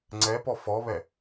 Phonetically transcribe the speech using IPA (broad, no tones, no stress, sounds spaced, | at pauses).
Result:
ŋ͡ǀ ɛ p ɔ f ɔ β ɛ